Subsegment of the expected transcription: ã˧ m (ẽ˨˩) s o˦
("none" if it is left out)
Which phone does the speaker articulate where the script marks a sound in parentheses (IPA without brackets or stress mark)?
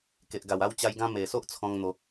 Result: e˨˩